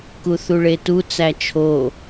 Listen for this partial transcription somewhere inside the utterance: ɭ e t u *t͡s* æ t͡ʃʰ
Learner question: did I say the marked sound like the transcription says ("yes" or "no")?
yes